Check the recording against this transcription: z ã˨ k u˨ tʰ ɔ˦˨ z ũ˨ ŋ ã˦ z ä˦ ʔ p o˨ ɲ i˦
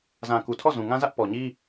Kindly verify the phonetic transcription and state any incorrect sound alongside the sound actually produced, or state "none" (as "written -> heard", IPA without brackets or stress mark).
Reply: o˨ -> ɔ˨